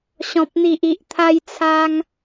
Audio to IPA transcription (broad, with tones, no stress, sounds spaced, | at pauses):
ɕ ɔ̃˨ p̚ n̪ i˨ ʔ i˨ ʔ t̪ʰ a˧ j t͡sʰ a˧ ŋ